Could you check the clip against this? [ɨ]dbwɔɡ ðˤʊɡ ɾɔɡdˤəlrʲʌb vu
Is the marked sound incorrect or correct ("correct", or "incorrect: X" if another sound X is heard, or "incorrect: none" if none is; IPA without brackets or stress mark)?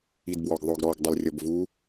incorrect: i